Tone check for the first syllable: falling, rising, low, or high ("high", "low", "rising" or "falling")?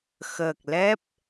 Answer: low